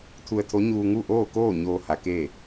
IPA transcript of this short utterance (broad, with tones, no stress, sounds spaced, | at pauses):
t̪ʰ u˧ ə̯ t̪ʰ o˧˥ ɲ uː˧ ŋ u˥˨ ʔ oː˥˨ k oː˥˨ ɲ oː˧ h a˩˧ k eː˥˨